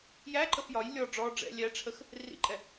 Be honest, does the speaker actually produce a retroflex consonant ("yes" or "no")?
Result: yes